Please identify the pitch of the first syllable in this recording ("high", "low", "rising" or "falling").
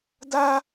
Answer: high